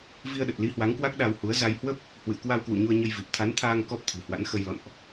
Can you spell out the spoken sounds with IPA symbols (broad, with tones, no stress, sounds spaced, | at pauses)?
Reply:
v i˧ ə̯ ɗ ə˨˩ t̚ l i˨˦ h w a˨˦ ŋ k w a˦˥ k̚ ɗ a˧ w h u˨˦ ə̯ z a˧ j h w ə˦˥ p̚ | h w ɨ̰˧˨ ə̯ k w a˧ w k w ṵ˧˨ ɲ u˧ ə̯ ɲ ə˧ j v i˨˩ p̚ t̪ʰ a˨˦ n t̪ʰ aː˧ ŋ k ɔ˦˥ p̚ t̪ʰ ɨ̤˨˩ h w a̰˧˥ n x ə˧ j l ɔ̰˧˨ n ʔ